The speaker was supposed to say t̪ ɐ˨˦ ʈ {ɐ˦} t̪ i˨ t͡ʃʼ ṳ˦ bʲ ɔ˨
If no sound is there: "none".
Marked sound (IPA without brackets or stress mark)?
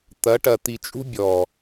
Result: ɐ˨